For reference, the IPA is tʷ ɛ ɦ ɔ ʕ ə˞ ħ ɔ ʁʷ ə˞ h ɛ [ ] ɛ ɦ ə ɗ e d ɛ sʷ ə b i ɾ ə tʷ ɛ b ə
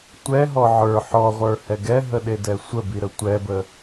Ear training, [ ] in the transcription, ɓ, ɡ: ɡ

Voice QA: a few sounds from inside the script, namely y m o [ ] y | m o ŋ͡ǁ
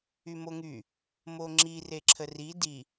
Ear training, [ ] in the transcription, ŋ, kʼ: ŋ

